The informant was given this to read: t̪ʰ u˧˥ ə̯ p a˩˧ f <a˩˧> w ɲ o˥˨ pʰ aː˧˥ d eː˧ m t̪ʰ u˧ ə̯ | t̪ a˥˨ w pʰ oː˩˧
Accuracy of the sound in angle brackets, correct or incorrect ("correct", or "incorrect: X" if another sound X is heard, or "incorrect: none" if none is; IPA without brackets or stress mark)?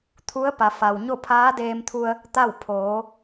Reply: incorrect: a˩